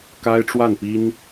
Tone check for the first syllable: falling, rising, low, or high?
high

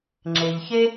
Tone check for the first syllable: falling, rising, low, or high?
low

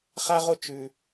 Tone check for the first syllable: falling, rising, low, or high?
high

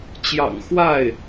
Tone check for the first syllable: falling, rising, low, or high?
low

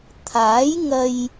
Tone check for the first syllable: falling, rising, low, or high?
rising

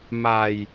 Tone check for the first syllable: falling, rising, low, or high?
low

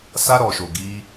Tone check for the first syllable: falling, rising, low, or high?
high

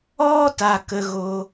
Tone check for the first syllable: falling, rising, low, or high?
high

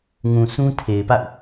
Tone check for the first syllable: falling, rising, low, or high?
low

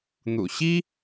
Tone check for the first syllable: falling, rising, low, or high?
low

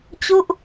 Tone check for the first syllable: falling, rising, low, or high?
falling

